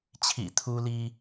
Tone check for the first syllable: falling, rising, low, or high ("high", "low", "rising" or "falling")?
low